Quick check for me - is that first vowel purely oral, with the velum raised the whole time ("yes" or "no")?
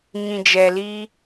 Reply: no